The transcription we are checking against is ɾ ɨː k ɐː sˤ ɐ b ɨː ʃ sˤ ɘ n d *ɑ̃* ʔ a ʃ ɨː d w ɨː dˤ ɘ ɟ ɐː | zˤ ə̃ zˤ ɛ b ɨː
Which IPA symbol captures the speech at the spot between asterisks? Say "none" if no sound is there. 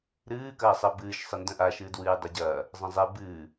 ə̃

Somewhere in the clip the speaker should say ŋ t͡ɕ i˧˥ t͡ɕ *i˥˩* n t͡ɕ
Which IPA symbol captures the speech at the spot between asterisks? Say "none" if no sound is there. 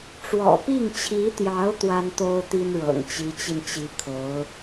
i˧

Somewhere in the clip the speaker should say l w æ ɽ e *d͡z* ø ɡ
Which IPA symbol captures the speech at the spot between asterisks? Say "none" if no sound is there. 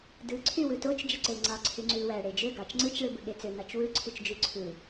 d͡ʒ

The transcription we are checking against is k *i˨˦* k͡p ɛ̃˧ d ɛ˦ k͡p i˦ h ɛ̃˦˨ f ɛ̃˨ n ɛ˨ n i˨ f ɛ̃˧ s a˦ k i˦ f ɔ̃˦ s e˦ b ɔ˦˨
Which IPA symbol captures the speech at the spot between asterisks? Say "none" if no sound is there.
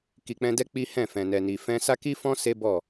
i˨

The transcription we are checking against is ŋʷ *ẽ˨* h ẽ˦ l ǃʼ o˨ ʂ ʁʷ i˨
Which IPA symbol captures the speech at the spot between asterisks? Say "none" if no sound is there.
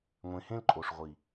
ẽ˨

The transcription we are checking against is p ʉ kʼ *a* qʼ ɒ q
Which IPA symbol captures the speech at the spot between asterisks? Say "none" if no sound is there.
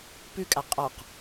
a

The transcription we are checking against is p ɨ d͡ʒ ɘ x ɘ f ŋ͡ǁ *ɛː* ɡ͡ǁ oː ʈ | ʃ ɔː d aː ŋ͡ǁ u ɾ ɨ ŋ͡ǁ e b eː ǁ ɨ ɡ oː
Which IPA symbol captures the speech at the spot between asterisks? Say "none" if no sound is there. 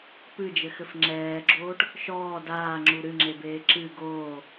ɛː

